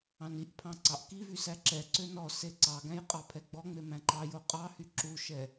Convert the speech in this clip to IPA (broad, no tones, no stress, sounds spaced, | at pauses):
ɑ̃ n i ʔ pʰ ɑ̃ ǀ ɑ ʔ k i v y s æ ǁ ɛ ǀ ø n ɔ s e ǀ ɑ ɡ æ̃ j qʼ ɑ pʰ ɛ ɡ͡b ɔ ŋ͡m e m æ̃ ǃ ɑ j o qʼ ɑ h y ǁ u ʃ ɛ